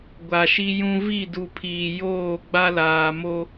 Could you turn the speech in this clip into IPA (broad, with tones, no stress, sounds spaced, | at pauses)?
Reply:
ɡʷ a˨ ʃ i˦ j ũ˦ v i˦˨ d u˨ pʰ iː˨ j oː˦˨ ɡ͡b a˦ l aː˨ m o˦